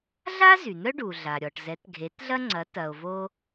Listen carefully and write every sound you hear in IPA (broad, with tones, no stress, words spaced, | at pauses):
ɮa˥ zy˩n̪œ˥ ɖu˩ɮa˩ɾʲɔ˩ʈ zɛ˩˥tɡʱe˩˥tɮɐ˥ŋ͡ǀɐ˩˥ tɐ˩o̯vo˧